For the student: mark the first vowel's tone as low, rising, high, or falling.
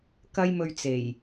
high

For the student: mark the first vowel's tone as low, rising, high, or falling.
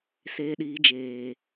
low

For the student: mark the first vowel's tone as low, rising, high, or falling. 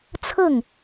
falling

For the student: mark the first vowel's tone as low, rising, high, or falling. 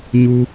high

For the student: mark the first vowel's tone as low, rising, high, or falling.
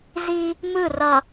high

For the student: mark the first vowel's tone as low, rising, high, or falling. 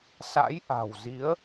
rising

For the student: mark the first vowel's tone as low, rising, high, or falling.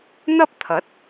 high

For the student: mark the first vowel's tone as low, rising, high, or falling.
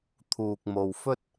low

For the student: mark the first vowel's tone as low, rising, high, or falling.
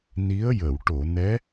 rising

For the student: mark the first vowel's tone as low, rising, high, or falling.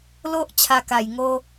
high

